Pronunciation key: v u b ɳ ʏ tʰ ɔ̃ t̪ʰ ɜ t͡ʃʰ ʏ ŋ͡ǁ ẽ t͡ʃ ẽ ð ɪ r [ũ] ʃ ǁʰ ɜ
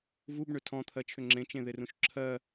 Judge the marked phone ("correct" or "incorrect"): correct